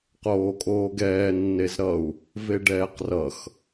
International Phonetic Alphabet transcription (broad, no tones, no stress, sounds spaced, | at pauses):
q oː kʼ oː ɡ ɛː nː e z ɾ ʌ u̯ | v e ɖ ɛː q r ʌ x